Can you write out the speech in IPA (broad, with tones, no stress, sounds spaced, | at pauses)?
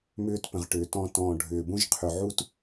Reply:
m ʏː˧ t p ə̃˨ ʁ ʈ ʏː˨ t ɔ̃˧ t ɔ̃ː˨ ɖʱ ʏː˨ b ũ˦ ʒ qʰ ʏ˧ ʕ u˦ t